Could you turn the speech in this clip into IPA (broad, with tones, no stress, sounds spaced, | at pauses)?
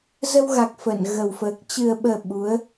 z ə˧ w ɣ a˨˩ k̚ f ə˧˩ n ɣ ə˨˩ w f əː˨˩ k̚ t͡ɕ ɨ˨˩ ə̯ ɓ əː˨˩ ɓ u˨˦ ə̯